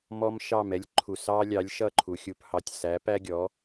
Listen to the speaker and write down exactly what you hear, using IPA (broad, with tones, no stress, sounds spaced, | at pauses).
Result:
m ɔ˧ m ʃ ɑ˥˩ m ɛ˥ lʲ ǃʰ u˩ s ɑ˥ lʲ ɑ˩˥ lʲ ʃ ʌ˥˩ ǃʰ u˩ xʲ u˧ p h ɑ˩ tʲ s æ˩˥ p æ˥ ɡʲ ɔ˩˥